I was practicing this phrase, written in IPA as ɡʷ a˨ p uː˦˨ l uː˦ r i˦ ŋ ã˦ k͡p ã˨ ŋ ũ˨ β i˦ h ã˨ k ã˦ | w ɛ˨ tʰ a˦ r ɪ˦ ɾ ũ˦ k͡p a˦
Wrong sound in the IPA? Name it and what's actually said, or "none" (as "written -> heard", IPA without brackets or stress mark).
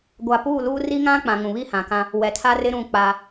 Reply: none